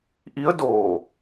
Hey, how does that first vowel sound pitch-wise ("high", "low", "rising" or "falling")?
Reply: rising